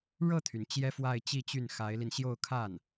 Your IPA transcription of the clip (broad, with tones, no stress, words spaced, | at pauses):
ɻɤ˥˩t̪ʰy˩n t͡ɕjɛ˥fwa˥˧ɪ̯t͡ɕi˥˧t͡ɕy˥˩n xa˧˥ɪ̯li˧n ɕjo˥˧ʊ̯kʰa˥˩n